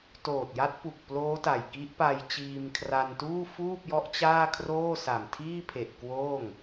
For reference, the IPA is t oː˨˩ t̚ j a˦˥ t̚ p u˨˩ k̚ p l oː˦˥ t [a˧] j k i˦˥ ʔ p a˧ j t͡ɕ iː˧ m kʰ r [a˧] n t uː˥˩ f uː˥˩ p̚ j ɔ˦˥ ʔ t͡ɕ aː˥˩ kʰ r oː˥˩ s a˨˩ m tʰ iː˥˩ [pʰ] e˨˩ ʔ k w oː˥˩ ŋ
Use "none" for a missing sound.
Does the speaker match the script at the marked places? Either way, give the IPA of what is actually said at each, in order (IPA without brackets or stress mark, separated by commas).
a˨˩, a˧, pʰ